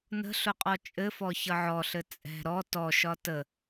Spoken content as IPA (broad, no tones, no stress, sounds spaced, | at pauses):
n ə̤ ɬ ʊ qʼ ɔ t͡ʃʼ ɘ f ɔ ç ʌ ʕ ɔ ɬ ɘ t͡sʼ ɛ̤ ɾ ɔ t ɔ ʃ ɒ t ə